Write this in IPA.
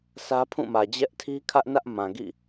sä˦pʰũ˦˨mä˨ d͡ʑɛ˦ʔtʰi˦kʰä˦ʔnä˦ʔ mã˨ɡḭ˦˨

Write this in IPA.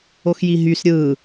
oxjiɦys ɾʲɯ

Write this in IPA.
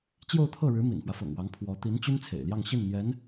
t͡ɕjo˥˧ʊ̯t̪ʰɤ˥˩ɻɻ̩˧˥ mḭ˨˩nfwä˦fɤ̰˨˩ŋwɑ˧˥ŋ pʰwɔ˧˥ t̪i˧˥nt͡ɕy˥n t͡sʰḛ˨˩ɪ̯ljɑ˥˧ŋ ɕi˥˩nn̪jɛ˧˥n

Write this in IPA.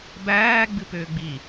bæː ɡ͡bɨpʏːɡ͡bi

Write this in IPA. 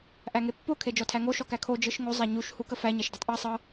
ʔæŋepːo kʰed͡ʒɔtʰæŋo ʃɔkækʰo d͡ʒɯʃŋo zˤæɲuʃ hukəfæ ɲæʃdɯtˤʔe sˤɤ

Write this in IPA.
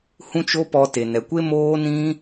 hũ˦t͡ʃo˦pɔ˧te˨ nɛ˨kʷe˦ moː˦nĩ˦

